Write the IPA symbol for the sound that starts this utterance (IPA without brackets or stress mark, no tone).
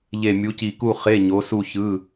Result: ʎ